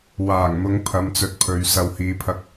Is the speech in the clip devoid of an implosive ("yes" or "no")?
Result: yes